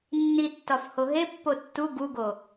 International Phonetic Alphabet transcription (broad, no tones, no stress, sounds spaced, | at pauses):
nː i tː ɒ f h o ɦ e pː o tː u ɡ u ɡ o